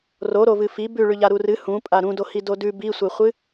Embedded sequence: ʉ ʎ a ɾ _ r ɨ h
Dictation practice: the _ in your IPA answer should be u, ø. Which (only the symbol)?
u